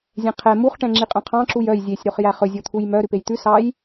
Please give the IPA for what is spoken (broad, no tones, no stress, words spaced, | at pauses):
zʲɛ̃qʰɛ muχ ʈɛ̃ŋ͡ǁiqʼœ̃qʰɑ̃ ǁujœj zʲesʲ ɾoχjæχɵ zʲot̪ʰujmœ ɾʉpejt̪ʉ sɑj